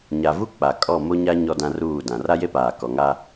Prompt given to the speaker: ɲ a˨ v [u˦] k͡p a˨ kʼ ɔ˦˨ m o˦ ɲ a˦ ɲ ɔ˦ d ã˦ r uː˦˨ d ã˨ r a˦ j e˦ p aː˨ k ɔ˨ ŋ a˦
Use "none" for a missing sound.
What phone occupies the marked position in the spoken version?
u˦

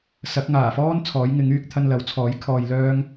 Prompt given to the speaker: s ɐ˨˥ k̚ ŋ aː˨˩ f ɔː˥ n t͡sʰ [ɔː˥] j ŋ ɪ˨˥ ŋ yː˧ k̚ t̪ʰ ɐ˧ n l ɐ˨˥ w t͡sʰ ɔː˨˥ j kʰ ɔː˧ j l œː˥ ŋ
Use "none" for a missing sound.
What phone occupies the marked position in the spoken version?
ɔː˨˥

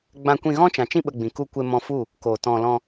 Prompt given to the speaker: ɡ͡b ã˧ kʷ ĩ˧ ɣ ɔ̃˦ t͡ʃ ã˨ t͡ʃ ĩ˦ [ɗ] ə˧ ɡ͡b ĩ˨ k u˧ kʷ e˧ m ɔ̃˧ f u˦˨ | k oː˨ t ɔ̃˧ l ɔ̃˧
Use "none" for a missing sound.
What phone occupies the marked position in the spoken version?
ɓ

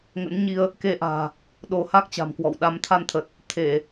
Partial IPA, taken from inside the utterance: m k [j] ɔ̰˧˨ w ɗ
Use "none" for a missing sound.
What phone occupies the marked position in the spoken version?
w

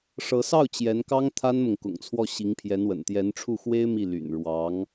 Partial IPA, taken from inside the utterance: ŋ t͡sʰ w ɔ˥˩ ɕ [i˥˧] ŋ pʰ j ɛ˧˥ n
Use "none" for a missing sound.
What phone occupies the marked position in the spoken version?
i˧˥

